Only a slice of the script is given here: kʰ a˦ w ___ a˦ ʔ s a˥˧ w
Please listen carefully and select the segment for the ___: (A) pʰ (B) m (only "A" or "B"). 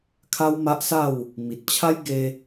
B